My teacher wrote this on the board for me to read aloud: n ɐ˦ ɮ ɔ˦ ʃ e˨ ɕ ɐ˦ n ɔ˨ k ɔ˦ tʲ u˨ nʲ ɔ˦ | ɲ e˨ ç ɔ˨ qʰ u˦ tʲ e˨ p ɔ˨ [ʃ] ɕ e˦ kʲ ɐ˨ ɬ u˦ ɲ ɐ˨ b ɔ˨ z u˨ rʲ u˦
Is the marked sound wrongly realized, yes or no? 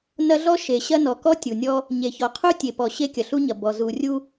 yes